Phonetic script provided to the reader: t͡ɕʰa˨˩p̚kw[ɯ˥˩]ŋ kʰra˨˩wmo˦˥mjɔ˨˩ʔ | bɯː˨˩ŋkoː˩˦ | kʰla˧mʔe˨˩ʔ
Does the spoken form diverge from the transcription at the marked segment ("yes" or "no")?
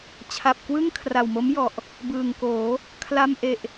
no